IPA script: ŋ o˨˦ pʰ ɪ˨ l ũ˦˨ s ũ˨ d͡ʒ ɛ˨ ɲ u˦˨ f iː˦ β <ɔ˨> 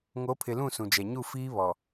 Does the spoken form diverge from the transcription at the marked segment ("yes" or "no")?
no